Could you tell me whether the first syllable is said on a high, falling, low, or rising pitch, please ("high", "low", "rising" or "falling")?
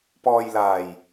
low